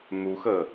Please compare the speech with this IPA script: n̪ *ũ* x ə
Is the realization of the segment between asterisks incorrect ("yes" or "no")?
yes